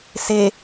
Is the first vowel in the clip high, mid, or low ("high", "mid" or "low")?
mid